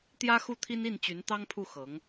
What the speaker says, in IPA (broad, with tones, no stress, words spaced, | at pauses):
t̪jä˥xu˥˩t̪ʰi˥ni˥˩n t͡ɕy˧˥nt̪ɑ˥ŋpʰu˥˩ xɤ˧˥ŋ